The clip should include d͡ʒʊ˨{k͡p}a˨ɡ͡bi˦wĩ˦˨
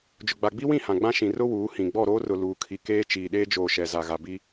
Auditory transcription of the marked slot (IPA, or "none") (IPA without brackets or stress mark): ɡ͡b